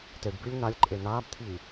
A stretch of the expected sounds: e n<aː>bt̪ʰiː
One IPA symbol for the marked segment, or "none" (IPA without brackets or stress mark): aː